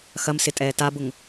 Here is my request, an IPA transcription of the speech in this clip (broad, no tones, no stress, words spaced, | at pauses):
xɐmsɪtʼɛː tabʊŋ